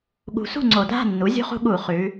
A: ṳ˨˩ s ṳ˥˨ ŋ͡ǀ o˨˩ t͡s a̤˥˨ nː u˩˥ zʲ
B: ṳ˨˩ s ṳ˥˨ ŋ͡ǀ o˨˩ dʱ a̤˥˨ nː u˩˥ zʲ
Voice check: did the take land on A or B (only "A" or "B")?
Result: B